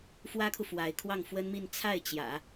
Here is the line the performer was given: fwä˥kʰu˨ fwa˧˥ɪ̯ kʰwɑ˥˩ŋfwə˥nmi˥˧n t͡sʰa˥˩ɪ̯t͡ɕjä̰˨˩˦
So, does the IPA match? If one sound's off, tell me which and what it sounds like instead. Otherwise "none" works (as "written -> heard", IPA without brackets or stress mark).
none